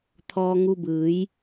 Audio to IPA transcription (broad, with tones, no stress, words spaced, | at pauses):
t̪ʰɔː˧ŋu˧bɯː˩˧j